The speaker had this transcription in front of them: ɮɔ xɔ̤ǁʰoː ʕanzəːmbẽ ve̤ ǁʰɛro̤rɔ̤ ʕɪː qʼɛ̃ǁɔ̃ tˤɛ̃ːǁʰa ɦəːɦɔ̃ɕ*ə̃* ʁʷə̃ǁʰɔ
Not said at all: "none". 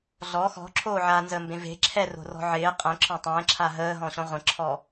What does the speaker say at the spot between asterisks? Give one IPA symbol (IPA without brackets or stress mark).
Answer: ɔ̃